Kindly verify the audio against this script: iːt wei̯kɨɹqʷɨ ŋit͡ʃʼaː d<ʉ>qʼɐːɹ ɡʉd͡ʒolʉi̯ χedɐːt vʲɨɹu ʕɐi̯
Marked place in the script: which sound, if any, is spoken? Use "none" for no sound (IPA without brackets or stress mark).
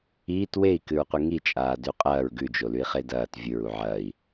ʉ